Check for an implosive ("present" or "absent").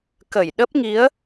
present